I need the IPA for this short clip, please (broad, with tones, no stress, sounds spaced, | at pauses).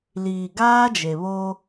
l iː˨ ɡ aː˦ d͡ʒ e˨ β oː˦